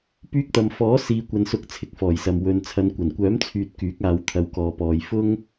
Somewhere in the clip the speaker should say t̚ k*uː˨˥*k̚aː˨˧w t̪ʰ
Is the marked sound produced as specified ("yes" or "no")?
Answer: no